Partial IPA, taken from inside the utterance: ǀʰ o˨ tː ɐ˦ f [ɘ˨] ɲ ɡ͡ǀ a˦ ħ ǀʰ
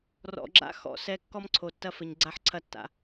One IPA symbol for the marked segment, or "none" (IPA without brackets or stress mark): ɘ˨